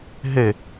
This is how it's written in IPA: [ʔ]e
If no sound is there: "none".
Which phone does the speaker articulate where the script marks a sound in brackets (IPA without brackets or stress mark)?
ɦ